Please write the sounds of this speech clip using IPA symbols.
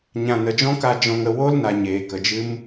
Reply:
ɲã˨nə˨d͡ʒɔ̃˦ka˧ d͡ʒɔ̃˧ŋə˧ wo˦lna˨ ɲeː˨kə˨d͡ʒɨ˦m

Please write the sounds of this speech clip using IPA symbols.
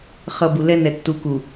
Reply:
χʌ˨ bu˨lɛ˦nɛ˨ tːu˨ku˨

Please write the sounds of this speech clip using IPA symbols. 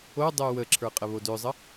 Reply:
odˤø wəǁʰə˞qʼəβo døzˤə

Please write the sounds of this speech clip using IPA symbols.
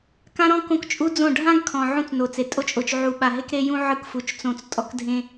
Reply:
kã˦ɾɔ̃˦ kõ˦kt͡ʃʼu˦d͡zõ˦˨ ɖʱã˦ɡkʰɔ̃˨ ʕũ˦t͡sno˨t͡se˨ tʼo˦t͡ʃʼo˨t͡ʃ ʕu˨ɓa˨ɦe˦k ɾe˦jũ˦ ʕɯ˦kfu˨t͡ʃ t͡sõ˨t͡s tʼɔ˦kdʱẽ˦

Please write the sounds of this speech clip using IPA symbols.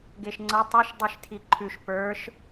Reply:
ɡeʃŋ͡ǀʌ tˤʌʃ dˤiʃtʰiǃʰʉʃ pə˞ʃ

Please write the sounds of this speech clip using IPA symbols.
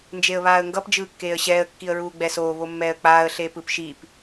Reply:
nd͡ʒeə̯βaːə̯ŋɡʌp d͡ʒɯːkːeːə̯ɕɛːə̯ kːiə̯ɹuːɡ͡bɛsoː βomːɛːə̯k͡paːə̯ ɬeːpɯpʃip

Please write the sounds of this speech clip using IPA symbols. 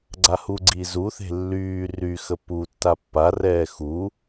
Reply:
ɡ͡ǀahuɡ͡ǀi zuθe̤ lːyː ryxə pu tːapːarɛː xu

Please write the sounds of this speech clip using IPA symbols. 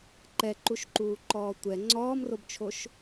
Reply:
ǃɛǃuʃǃuː ǃɔːtʷɛ ŋ͡ǀɔːmrobt͡ʃʰoʃ

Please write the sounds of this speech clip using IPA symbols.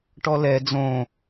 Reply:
ʈɔlɛ d͡zõ

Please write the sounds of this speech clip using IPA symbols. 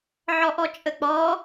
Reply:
ʕɔʔɔt͡ʃʼək͡pɔ

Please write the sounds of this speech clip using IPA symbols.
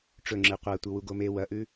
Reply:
ʈ͡ʂɵŋ͡ǁɨ qʷatʷɨ wuɡome wɐʔʉ

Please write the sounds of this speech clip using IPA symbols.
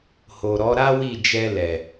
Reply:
ho˨ɾɔ˨˦ ɾa˦ wi˦˨ d͡ʒɛ˧lɛ˨

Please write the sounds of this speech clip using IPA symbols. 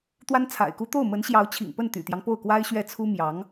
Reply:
t̪wa˥nt͡sʰa̰˨˩ɪ̯ku˥ t̪o˥˩ʊ̯mə˧˥nɕjɑ˧˥ʊ̯ t͡ɕʰḭ˨˩ŋpə˥˩nt̪y̰˨˩t̪jɑ˦ŋ po˥˩ʊ̯kwa˥ɪ̯ɕɥɛ˥˩ t͡sʰu˥ mjɑ˧˥ŋ

